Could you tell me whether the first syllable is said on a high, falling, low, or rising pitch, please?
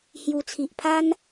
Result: low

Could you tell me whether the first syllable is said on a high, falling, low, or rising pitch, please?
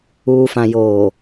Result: low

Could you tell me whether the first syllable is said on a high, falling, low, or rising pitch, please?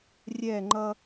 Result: falling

